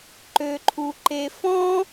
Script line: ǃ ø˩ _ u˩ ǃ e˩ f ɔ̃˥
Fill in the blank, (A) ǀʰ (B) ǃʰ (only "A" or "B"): B